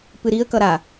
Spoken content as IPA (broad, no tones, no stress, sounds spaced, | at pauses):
p ɨ ɾ i ə̯ k ʌ ɾ a